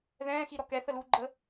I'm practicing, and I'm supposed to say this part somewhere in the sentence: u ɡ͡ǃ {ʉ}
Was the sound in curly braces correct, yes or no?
no